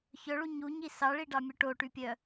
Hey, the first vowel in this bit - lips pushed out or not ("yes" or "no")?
yes